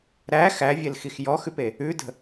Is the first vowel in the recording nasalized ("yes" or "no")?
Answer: no